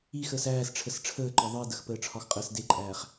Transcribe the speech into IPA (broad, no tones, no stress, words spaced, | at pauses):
ixəːs æːsʈ͡ʂʰəs ʈ͡ʂʰəːǃɒ ðˤi dəxpəːʈ͡ʂʰɒxqʼəːs deǃʼæːχ